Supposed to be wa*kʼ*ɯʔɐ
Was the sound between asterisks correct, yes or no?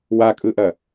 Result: yes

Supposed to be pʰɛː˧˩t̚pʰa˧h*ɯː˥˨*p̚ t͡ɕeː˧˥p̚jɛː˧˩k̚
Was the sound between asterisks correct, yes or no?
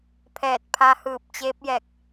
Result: no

